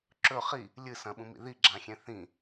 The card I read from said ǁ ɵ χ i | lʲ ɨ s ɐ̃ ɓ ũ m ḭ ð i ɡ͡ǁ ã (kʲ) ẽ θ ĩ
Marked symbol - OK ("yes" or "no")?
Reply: no